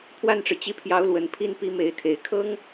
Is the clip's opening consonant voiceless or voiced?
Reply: voiceless